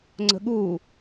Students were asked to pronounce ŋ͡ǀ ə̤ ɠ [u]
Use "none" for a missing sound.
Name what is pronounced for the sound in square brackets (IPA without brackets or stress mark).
u